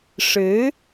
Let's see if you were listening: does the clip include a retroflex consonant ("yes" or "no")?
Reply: yes